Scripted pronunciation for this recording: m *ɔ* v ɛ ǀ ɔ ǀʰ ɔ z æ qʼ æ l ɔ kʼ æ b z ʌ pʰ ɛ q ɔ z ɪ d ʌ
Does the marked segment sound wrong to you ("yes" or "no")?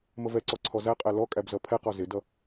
yes